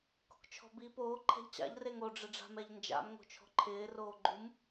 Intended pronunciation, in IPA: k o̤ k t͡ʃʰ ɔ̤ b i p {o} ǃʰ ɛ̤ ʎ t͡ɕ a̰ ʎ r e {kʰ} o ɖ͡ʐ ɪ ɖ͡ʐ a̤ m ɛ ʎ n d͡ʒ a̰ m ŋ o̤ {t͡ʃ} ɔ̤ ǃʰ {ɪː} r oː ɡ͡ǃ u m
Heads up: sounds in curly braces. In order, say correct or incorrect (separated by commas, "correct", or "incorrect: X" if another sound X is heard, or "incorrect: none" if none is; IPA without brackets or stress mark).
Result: incorrect: oː, incorrect: ŋ, incorrect: t͡ʃʰ, correct